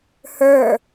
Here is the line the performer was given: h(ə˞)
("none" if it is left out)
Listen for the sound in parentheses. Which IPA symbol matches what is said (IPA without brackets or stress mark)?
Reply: ə˞